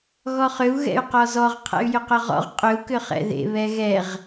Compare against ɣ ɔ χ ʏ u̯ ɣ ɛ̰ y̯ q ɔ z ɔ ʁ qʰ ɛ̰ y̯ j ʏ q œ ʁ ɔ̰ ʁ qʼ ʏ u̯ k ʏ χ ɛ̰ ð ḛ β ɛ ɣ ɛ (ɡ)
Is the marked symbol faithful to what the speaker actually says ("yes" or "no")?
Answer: no